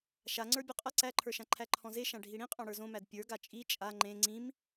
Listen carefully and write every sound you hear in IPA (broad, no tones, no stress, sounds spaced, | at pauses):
ʃ a ŋ͡ǀ ə˞ bʲ u qʼ ɐ ǀ æ ǃʰ ə˞ ʃ ã ǃʰ æ ǃʰ ɔ̃ z e ʃ ã ɖʱ i ɽ ĩ qʼ ɔ̃ ɽ ə˞ z õ m æ d pʲ ə˞ ɡ a t͡ʃʼ i t͡ʃʼ a ŋ͡ǃ ẽ ŋ͡ǀ ĩ m